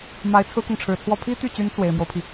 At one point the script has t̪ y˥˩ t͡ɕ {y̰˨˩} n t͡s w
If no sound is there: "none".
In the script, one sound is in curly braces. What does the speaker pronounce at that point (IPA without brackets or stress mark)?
y˧˥